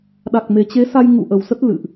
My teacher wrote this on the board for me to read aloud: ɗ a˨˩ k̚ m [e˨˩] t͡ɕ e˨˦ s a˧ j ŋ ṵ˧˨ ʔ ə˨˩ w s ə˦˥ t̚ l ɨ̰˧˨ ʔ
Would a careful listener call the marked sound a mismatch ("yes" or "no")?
no